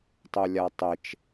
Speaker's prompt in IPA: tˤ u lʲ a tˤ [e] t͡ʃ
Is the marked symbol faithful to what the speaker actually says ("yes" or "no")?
yes